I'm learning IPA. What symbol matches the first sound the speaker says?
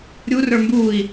ɾʲ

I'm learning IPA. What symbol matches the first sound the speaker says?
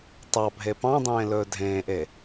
tˤ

